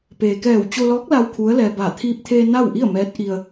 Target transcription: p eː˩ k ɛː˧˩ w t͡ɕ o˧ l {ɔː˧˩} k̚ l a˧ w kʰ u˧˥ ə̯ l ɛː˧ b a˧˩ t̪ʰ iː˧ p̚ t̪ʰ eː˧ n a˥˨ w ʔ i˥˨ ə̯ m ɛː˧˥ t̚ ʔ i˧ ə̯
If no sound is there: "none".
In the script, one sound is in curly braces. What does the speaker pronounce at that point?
ɔː˧˥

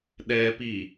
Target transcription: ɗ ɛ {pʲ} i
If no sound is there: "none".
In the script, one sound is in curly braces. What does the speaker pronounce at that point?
p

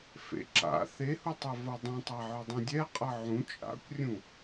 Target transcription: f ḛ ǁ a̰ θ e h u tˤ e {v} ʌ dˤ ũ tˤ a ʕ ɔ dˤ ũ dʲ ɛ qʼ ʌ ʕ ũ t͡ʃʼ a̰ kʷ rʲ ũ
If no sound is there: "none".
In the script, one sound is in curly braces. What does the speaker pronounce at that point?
v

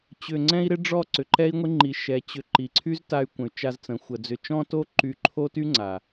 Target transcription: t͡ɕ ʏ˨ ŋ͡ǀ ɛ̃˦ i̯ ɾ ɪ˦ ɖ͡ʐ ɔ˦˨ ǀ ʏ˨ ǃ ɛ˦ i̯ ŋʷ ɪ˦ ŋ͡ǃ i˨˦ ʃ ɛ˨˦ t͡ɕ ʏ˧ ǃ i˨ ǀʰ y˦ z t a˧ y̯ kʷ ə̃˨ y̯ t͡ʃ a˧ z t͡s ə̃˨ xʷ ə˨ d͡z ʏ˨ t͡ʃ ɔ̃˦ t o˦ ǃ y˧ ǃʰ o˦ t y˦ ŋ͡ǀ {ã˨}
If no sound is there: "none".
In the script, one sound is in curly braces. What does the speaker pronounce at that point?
a˨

